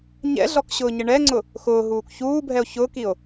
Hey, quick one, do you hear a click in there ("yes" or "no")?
yes